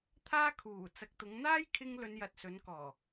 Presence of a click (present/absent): absent